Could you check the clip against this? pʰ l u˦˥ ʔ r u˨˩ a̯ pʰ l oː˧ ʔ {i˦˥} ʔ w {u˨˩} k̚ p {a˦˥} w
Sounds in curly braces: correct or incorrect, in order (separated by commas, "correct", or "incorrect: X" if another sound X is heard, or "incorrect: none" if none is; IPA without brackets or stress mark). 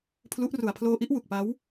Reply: correct, correct, correct